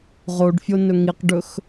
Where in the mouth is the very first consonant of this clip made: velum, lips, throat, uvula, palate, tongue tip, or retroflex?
uvula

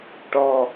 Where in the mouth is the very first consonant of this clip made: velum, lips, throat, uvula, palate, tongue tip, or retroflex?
retroflex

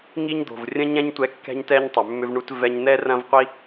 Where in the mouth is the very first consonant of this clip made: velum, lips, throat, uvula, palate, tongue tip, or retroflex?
velum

